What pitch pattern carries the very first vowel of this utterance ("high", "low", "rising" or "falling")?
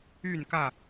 falling